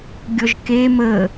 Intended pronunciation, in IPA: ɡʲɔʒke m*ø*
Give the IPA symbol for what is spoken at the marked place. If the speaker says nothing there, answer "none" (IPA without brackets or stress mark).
ə